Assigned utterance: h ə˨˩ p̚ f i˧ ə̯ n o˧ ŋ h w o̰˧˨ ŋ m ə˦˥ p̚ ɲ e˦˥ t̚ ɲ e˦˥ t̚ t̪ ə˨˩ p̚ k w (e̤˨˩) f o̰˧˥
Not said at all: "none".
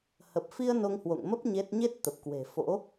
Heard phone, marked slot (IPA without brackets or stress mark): e̤˨˩